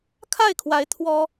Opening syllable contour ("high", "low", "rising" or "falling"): falling